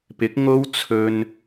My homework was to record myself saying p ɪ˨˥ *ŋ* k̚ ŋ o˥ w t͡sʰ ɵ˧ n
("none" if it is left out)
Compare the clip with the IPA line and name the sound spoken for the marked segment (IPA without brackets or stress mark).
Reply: none